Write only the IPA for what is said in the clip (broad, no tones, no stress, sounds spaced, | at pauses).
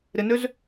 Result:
ɾ ɪ n ø z